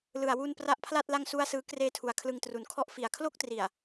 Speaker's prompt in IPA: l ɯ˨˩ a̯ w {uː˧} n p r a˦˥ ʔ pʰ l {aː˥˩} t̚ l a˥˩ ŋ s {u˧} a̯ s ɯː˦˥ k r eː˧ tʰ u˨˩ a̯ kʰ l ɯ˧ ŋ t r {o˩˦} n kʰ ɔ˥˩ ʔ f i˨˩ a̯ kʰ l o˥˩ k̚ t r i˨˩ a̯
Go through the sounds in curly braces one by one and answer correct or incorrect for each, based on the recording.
incorrect: u˧, incorrect: a˥˩, incorrect: u˥˩, incorrect: u˩˦

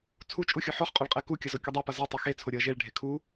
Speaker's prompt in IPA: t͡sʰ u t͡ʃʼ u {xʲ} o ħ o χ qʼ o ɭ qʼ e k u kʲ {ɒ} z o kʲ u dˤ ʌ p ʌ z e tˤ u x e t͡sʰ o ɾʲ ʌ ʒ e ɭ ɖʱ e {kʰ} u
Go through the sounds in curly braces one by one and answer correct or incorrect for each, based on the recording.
correct, incorrect: ʌ, correct

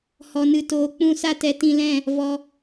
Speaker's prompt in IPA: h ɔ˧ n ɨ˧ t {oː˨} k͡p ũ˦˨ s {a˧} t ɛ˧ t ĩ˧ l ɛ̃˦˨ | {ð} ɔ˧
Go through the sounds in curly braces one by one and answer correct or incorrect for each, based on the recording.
incorrect: oː˧, incorrect: a˦, incorrect: v

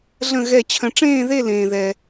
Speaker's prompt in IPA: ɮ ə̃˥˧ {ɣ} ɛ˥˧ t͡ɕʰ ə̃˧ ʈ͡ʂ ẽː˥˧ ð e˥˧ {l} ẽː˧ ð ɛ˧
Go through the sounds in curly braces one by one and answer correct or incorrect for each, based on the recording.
correct, correct

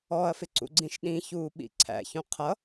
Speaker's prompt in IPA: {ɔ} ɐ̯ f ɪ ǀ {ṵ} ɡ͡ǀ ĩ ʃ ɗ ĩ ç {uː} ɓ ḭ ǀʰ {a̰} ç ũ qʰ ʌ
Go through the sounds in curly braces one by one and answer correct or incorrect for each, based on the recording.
correct, correct, correct, incorrect: æ̰

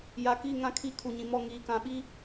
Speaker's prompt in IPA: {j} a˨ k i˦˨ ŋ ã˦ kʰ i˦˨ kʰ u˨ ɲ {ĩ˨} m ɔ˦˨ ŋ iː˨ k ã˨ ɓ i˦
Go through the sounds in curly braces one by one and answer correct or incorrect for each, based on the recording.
correct, correct

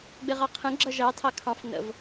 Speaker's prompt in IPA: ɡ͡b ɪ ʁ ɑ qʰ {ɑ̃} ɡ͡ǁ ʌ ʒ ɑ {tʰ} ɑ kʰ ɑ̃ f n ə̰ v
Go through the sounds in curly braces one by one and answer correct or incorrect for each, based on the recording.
incorrect: ə̃, correct

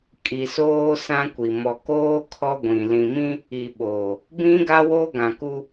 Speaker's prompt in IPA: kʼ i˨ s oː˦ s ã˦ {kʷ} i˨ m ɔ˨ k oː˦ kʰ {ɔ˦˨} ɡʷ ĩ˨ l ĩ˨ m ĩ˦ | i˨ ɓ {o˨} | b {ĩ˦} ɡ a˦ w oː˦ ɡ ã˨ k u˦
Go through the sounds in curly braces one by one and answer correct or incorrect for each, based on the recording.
correct, incorrect: ɔ˦, incorrect: oː˨, correct

